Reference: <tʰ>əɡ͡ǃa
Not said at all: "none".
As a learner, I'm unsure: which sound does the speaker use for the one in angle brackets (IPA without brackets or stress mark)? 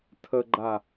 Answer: tʰ